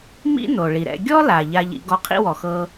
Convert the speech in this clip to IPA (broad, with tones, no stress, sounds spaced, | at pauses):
m ḭ˥ n o˩ ɭ i˩ ɾ ɛ̰˧ ɡʲ ɔ˥ l a˩ ʎ a˧ ʎ ḭ˧ ɡ ɔ˧ qʰ ḭ˥ w ɔ˩ x ɤ˧